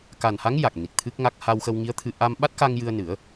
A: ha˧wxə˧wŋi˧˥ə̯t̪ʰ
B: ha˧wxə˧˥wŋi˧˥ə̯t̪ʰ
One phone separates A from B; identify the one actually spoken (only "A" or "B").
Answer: A